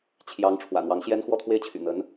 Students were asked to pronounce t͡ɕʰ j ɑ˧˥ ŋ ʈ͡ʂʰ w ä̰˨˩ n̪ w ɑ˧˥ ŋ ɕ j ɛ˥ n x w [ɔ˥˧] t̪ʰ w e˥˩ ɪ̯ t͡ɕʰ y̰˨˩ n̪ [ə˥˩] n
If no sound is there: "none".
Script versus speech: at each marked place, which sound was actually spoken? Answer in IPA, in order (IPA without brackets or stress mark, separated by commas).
ɔ˥˧, ə˧˥